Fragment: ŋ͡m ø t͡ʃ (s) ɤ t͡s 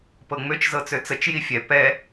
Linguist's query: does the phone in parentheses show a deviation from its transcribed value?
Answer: yes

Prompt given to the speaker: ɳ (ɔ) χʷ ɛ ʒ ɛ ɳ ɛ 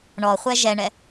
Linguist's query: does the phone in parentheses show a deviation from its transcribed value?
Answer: no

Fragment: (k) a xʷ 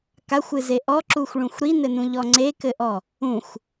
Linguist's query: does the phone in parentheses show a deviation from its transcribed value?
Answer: no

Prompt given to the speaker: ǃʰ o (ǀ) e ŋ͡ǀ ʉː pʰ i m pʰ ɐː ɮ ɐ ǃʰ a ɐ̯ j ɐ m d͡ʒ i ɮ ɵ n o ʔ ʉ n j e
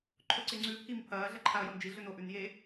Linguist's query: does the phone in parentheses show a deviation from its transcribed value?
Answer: no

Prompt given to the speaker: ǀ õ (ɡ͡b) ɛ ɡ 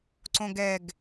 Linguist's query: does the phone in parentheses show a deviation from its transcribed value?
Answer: yes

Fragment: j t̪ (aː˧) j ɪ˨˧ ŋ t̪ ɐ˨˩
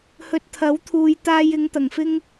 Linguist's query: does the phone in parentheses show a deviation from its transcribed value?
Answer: no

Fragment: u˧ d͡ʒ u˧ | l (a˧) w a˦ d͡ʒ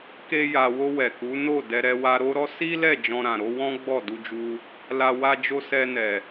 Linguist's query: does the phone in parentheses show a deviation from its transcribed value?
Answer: no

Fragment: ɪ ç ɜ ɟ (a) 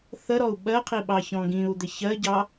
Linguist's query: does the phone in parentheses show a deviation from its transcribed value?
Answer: yes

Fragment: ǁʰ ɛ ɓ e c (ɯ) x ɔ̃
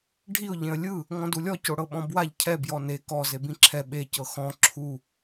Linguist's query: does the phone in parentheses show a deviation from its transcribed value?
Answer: yes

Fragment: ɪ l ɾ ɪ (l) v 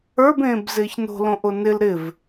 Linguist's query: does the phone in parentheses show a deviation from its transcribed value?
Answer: yes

